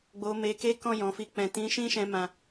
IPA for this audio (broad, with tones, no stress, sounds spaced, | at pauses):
ɡ͡b o˨ m e˨ k e˨˦ k ɔ̃˦˨ j ɔ̃˨ f i˧ k͡p ɛ̃˨ t ĩ˨˦ ʃ ĩ˦ ʃ ɛ̃˧ m ã˨